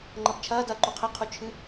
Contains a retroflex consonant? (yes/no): no